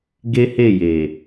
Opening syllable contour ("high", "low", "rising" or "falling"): high